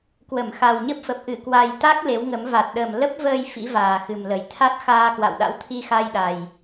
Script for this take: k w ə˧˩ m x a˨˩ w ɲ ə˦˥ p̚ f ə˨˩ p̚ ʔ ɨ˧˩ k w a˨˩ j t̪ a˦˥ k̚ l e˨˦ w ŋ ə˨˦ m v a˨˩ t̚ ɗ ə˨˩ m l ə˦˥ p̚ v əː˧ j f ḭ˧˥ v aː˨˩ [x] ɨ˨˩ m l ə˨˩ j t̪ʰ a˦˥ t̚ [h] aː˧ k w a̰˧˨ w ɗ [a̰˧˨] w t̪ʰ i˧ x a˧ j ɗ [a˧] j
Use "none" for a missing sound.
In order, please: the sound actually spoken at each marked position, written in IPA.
x, x, a̰˧˥, a˨˩

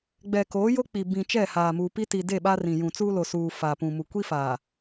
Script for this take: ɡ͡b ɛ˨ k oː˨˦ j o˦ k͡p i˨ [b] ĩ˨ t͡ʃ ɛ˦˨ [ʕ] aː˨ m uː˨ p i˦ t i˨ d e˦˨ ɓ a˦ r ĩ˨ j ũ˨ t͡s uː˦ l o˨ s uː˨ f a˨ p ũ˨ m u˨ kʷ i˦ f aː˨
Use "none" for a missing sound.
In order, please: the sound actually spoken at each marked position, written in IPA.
b, h

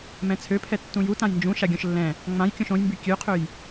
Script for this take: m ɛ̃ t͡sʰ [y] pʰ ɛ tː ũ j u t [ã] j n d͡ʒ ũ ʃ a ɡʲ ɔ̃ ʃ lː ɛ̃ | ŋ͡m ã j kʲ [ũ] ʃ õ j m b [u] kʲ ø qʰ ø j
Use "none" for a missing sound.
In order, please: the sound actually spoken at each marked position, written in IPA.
ø, ã, õ, y

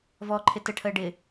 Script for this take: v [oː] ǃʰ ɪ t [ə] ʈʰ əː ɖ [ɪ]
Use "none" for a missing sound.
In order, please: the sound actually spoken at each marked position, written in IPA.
ɔː, ə, ɪ

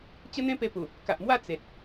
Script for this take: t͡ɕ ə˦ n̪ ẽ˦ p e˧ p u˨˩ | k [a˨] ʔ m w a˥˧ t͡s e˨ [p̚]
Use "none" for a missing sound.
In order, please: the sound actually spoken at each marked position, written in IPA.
a˨, t̚

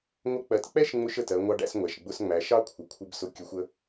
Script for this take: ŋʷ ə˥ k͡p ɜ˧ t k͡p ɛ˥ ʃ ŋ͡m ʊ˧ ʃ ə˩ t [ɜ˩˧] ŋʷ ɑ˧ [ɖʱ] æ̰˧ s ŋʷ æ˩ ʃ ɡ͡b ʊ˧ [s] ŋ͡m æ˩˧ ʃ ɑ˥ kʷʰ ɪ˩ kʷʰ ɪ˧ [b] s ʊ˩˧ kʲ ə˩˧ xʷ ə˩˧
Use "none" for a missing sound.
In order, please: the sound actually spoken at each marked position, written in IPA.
ɜ˩˧, ɖ, s, b

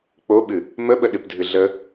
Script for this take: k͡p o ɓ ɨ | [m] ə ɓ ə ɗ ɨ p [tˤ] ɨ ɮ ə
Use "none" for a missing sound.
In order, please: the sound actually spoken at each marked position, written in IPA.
m, dʱ

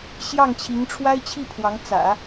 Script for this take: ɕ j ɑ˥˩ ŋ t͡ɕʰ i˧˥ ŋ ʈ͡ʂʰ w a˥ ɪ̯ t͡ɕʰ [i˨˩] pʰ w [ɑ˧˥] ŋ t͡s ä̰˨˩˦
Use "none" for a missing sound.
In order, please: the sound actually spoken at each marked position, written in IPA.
i˥˩, ɑ˧˥

